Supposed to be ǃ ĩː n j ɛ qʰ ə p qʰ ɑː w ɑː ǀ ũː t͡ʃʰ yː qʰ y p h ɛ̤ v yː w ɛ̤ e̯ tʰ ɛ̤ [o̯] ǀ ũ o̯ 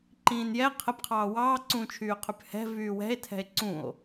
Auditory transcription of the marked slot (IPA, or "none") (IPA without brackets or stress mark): e̯